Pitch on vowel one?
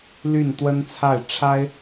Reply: falling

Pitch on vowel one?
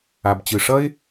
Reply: low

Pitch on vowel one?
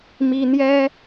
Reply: high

